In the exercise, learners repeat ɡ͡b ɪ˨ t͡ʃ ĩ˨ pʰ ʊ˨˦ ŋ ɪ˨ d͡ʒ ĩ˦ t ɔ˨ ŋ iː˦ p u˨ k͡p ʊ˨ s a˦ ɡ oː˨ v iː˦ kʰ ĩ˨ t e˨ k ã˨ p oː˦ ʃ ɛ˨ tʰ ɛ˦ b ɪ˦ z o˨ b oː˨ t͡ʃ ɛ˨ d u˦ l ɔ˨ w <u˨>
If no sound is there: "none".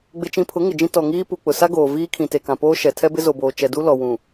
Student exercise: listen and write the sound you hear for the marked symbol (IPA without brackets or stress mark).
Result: ũ˨